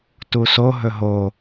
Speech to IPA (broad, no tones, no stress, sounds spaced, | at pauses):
t u s o ɦ ɵ ɦ o